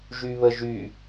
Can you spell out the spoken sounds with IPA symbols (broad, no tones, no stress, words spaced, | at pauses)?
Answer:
ʒyβəʒy